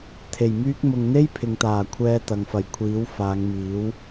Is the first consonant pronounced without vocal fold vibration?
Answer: yes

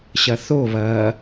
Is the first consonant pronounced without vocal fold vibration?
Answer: yes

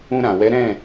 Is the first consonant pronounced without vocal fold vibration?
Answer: no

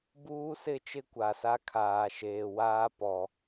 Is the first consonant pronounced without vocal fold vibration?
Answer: no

